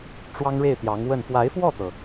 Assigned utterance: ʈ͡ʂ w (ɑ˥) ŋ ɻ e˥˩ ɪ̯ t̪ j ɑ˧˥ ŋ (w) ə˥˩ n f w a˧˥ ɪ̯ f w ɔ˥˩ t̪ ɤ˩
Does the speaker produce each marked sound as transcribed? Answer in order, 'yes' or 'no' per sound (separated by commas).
yes, yes